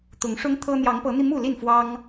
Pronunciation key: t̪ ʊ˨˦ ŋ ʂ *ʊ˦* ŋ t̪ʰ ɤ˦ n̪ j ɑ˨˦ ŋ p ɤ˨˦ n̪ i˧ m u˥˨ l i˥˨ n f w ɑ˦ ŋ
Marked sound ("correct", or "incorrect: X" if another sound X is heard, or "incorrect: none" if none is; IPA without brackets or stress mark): correct